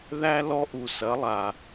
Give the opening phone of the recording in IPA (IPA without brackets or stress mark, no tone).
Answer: ð